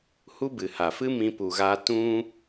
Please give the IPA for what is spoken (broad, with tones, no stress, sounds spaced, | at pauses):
h u˦ b ɨ˨ h a˨ f ɨ˦ m ĩ˧ p u˨ ɣ a˧ t ũ˦